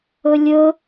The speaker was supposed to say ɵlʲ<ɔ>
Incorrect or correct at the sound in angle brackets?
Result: incorrect: ɵ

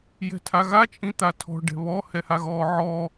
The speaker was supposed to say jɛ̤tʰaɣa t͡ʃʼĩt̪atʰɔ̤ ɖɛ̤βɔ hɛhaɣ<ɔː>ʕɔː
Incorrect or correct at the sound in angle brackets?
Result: correct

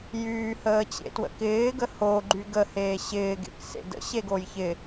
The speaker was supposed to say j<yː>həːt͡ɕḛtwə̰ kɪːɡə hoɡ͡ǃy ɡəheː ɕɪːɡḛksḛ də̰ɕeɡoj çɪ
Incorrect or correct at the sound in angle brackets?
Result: correct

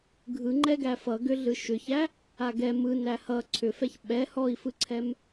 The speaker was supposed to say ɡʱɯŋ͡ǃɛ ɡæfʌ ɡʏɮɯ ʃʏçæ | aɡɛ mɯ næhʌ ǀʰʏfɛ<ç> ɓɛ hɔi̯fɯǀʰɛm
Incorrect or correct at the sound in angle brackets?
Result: correct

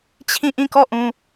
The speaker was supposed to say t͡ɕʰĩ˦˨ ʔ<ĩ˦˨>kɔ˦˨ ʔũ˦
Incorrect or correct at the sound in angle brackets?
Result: correct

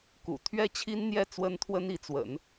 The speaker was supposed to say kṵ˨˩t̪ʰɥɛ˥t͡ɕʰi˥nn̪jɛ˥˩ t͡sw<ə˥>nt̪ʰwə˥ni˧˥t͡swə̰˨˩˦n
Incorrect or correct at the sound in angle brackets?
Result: correct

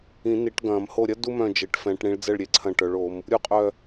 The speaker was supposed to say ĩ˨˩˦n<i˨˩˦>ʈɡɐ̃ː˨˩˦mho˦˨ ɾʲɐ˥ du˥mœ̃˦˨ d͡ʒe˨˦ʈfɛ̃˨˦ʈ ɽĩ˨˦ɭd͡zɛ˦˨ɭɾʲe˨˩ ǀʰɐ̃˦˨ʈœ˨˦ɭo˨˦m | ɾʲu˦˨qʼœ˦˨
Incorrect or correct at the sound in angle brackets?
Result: correct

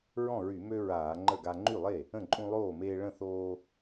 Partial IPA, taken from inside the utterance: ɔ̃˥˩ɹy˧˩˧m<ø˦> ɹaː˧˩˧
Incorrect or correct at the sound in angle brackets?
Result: correct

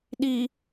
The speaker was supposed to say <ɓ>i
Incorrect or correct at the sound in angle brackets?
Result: incorrect: ɗ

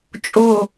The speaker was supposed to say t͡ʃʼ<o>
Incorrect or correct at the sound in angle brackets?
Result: correct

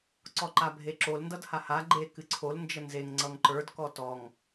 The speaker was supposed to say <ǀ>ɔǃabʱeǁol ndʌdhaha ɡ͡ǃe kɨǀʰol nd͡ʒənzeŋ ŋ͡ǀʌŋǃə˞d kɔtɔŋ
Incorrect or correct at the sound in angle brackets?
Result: correct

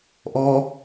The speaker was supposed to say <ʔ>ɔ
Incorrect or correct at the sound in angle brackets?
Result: correct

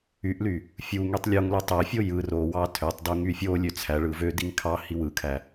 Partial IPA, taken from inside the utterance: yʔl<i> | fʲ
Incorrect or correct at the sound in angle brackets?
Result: incorrect: y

